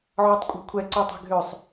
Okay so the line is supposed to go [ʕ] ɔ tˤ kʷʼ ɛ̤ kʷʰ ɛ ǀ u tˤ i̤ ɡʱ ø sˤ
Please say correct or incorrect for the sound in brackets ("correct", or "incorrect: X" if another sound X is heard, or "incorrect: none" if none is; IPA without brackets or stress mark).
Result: correct